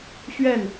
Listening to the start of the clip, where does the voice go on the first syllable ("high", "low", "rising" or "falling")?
falling